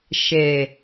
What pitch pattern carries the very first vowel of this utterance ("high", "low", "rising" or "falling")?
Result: low